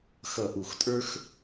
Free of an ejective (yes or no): no